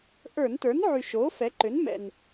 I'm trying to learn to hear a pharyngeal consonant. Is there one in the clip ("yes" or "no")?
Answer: yes